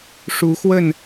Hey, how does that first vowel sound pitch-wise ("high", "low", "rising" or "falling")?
rising